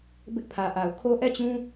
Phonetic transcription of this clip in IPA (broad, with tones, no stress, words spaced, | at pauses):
bɪ˦ʔpʰä˨ʔa˨ʊ̯ kʰo˦ʔɛ˦˨t͡ɕũ˦